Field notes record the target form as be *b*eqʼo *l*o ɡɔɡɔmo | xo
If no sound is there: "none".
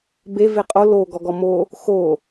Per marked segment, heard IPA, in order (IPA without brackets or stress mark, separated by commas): v, l